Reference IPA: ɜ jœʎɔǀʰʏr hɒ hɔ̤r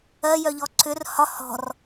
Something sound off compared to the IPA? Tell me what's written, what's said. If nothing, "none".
none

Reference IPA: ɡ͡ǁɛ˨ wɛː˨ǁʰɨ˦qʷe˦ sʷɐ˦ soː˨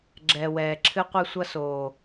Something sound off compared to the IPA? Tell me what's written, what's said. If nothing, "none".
none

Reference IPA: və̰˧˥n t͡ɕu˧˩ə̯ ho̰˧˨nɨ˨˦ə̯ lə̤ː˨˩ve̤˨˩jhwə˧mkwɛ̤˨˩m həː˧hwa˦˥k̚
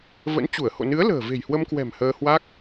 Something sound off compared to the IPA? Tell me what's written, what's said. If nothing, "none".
none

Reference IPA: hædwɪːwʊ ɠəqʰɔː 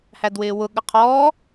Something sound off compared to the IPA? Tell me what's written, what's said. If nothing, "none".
none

